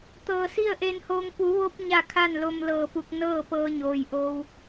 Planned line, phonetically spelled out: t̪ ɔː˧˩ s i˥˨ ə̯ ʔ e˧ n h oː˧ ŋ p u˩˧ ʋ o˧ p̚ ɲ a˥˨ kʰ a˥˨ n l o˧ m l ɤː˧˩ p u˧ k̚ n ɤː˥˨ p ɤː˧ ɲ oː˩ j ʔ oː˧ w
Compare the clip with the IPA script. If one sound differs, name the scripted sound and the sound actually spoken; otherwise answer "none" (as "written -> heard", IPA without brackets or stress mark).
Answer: ɔː˧˩ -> ɤː˧˩